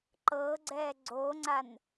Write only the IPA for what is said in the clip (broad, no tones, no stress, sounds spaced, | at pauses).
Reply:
ǃ ɤ ɡ͡ǀ ɛ ɡ͡ǀ o ŋ͡ǀ a n